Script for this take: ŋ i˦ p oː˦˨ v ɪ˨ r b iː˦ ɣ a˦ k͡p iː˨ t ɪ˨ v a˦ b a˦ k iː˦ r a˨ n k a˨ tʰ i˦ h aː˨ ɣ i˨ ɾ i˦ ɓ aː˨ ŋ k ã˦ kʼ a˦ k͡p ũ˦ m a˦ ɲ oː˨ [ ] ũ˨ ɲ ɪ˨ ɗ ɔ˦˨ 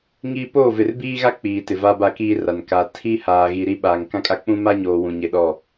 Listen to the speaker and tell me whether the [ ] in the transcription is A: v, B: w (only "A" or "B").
B